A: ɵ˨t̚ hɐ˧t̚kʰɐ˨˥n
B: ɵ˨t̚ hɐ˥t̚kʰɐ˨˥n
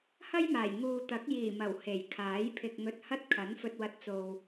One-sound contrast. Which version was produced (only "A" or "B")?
B